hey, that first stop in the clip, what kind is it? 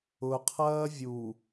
aspirated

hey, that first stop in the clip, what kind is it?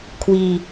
aspirated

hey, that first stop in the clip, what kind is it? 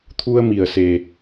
aspirated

